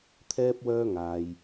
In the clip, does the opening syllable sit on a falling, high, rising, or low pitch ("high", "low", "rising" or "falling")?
high